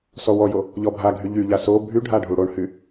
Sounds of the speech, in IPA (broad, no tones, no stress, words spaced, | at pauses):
sɔwɔjo | ʎɔbʱaɡʱy ʎyʎa so bʱyɖʱa ɖʱuɽoɳhy